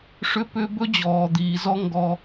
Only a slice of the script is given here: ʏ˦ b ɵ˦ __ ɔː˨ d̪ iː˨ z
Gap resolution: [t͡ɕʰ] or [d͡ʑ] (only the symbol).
d͡ʑ